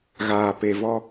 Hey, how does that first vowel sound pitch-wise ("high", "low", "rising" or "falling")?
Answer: low